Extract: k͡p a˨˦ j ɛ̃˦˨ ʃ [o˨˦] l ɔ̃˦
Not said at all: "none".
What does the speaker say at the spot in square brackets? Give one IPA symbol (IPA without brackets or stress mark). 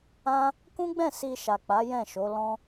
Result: o˨˦